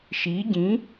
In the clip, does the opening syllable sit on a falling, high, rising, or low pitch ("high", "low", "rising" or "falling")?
rising